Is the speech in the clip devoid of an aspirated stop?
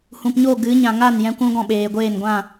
yes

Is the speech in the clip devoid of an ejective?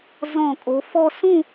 no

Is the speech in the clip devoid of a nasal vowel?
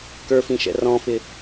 no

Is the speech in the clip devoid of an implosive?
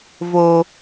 yes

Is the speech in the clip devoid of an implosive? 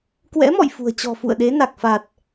no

